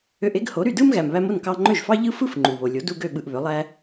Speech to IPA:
ø˧ ʔ e˥ ɡ h o˩˥ ɾ y˥˩ d ɯ˥ m ɣ æ˩ m β æ˧ m o˥˩ n k ɑ˧ ŋ͡ǃ ø˥˩ ʒ f ɑ˥ ʎ ɯ˥ f ɯ˥ f ŋ͡ǃ u˩ β o˩ lʲ o˩˥ d u˧ ɡ ø˥˩ ɓ ɯ˧ ʔ β ø˩˥ lˠ æ˥

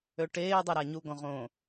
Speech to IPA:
ø ʈ eː dˤ e ɾ a ɲ u ɡ ɔ̃ ʁ õː

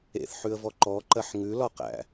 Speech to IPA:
ḛ θ ħ ʉ ə̯ v ɔ ǃ ɔ ǃ ɜ ħ ŋ ʉ l ɒ q æ̰

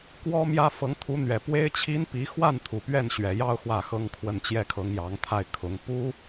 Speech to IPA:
k w ɔ˥ m j ä˥ f ɤ˧˥ ŋ t̪ʰ u˧˥ n̪ ɥ ɛ˨˩ p w e˥ ɪ̯ t͡ɕʰ i˥ n p i˧˥ x w a˥˩ n t̪ʰ u˨˩ p ɥ ɛ˥˩ n ɕ ɥ ɛ˨˩ j ɑ˥˧ ʊ̯ x w ä˥˩ x ɤ˥ ŋ kʰ w ə˥˧ n t͡ɕ j ɛ˥˩ kʰ ɤ˧˥ ŋ j ɑ˧˥ ŋ t̪ʰ a˥˩ ɪ̯ kʰ ʊ˧˥ ŋ p u˥

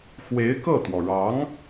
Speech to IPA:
x w e˧˥ ɪ̯ k ɤ˥˩ t̪ w ɔ˩ ɻ ɑ˧˥ ŋ

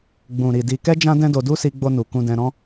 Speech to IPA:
ɡ͡b ũ˨ ɾ i˨ d i˨ k ɛ˧ d͡ʒ ã˧ d ɛ̃˦ d o˧ d u˦ s i˧ ɡ͡b o˧ n u˨ k ũ˧ d ɛ̃˧ ɾ ɔ̃˦

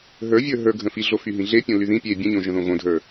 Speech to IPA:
ɦ ə˞ vʲ ə˞ ɦ ə˞ ɡʱ ə̃ f i ɮ o f y ɦ ĩ ɮ e pʲ õ l y ð ĩ pʲ e bʲ ə̃ ɲ õ ʒ ə̃ ð õ ɣ õ dʱ ə˞

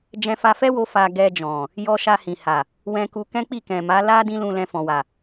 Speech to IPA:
d͡ʒ ɛ̃˧ f a˧ f ɛ˦ w o˧ f a˧ ɡ ɛ˧ d͡ʒ ɔ̃˨ | j ɔ˧ ʃ a˧ h ĩ˨ h a˨ | w ɛ̃˧ k u˧ k ɛ̃˦ k͡p i˦˨ k ɛ̃˨ m a˨˦ l a˦ d ĩ˦ l ũ˧ l ɛ̃˧ f ɔ̃˨ w a˨

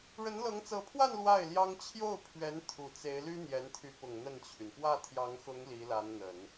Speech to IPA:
ɻ ə˧˥ n l ɤ˧˥ ŋ t͡s ɤ˧˥ pʰ w a˥˧ n l w a˥˩ ɪ̯ l j ɑ˥ ŋ t͡ɕʰ j o˥˩ ʊ̯ pʰ ɥ ɛ˧˥ n t̪ʰ u˨˩ t͡s e˧˥ ɪ̯ l y˥ n̪ j ɛ˧˥ n t̪ʰ y˧˥ p ʊ˨˩ ŋ n̪ ə˥˩ n t͡ɕʰ y˩ n p w ä˥˩ t̪ʰ j ɑ˧˥ ŋ x ʊ˧˥ ŋ l i˧˥ l a˧˥ n n̪ ə˨˩˦ n

